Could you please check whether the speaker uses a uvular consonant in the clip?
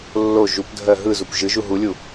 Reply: no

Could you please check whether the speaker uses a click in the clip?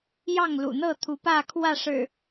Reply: no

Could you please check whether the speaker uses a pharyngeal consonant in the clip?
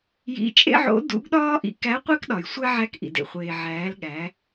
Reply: yes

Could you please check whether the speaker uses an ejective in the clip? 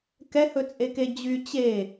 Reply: yes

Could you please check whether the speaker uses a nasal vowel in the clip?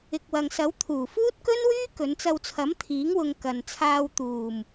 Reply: no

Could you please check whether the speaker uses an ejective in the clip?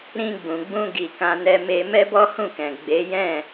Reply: no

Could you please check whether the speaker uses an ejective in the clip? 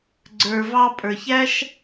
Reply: yes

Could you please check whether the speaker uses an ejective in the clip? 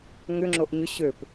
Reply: no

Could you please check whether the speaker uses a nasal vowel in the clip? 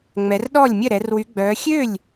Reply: no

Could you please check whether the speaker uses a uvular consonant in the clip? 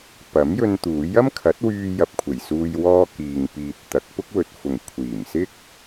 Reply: no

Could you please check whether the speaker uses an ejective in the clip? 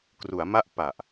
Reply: no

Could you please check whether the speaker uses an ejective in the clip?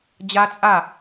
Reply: yes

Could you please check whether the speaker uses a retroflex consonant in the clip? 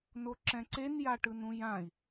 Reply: yes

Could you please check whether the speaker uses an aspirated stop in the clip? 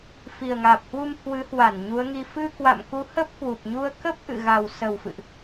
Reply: no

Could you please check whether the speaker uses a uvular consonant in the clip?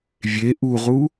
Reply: yes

